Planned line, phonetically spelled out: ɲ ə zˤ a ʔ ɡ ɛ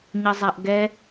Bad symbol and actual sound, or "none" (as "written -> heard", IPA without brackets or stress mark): none